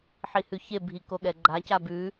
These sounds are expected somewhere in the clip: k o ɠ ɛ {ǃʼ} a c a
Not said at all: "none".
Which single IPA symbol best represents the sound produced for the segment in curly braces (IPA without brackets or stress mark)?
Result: ɡ͡ǃ